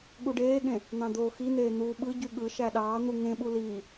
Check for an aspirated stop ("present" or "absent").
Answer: absent